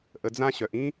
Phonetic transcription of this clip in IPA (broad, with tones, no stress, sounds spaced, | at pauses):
ʔ ə˨ d͡z ã˧ ɕ œ˨ ʔ ĩ˦